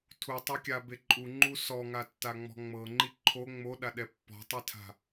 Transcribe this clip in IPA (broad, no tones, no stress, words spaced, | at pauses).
tʰutˤokʲabe ǃʼuŋ͡ǃu sɔŋatːaŋ͡mɔ̤ ŋ͡mɤŋ͡ǃi ǃʰo ŋ͡moɗaɗɛ pːɔ̤tˤitʰa̤